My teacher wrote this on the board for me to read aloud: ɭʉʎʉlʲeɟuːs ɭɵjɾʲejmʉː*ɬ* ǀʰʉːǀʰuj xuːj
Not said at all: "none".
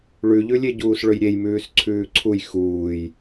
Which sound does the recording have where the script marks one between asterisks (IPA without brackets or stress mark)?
s